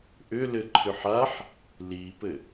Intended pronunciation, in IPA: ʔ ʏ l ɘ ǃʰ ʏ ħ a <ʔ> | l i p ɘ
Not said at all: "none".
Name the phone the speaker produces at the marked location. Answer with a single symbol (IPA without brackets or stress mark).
ħ